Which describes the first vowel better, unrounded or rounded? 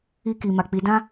unrounded